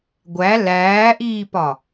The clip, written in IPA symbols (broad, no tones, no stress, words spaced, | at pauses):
ɡʷæ læːʔiːpɒ